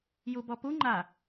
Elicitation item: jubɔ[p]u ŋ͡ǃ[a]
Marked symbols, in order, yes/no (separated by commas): yes, yes